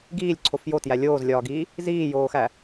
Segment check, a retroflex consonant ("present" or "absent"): absent